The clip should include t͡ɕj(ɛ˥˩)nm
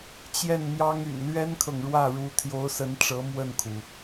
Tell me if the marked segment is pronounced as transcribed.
yes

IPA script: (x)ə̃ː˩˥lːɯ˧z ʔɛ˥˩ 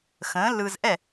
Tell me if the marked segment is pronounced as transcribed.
yes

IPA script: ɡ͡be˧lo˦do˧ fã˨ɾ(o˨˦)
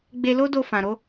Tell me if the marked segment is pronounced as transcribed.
yes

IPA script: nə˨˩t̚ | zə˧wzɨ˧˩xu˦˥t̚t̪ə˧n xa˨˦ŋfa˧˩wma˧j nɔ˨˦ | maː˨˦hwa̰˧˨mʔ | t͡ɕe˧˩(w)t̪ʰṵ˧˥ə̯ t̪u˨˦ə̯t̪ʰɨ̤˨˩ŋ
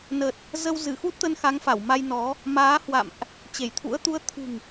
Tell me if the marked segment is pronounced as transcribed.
no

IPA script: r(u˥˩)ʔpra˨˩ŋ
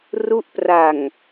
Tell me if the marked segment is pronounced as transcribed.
no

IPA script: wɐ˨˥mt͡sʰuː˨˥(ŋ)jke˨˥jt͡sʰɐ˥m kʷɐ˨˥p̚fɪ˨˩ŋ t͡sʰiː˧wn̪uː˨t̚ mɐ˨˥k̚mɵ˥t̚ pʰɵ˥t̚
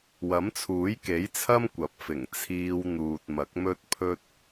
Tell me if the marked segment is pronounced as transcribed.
no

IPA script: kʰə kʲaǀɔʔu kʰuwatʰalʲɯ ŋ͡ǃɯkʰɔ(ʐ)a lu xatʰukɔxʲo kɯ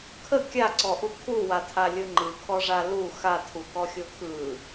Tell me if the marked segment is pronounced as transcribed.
yes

